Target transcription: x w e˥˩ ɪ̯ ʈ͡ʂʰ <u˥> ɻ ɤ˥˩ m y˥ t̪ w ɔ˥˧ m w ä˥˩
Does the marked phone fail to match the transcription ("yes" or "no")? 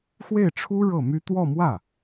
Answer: no